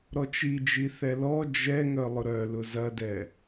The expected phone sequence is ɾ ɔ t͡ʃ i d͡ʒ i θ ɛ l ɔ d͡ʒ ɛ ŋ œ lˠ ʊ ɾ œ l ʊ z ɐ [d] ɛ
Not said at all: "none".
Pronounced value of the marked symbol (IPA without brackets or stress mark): d